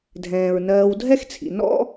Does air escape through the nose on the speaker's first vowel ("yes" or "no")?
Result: yes